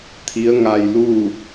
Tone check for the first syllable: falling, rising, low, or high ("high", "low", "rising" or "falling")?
rising